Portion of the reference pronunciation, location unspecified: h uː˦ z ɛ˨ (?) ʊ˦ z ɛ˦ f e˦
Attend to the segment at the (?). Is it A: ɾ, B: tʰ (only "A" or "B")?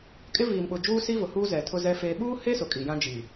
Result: B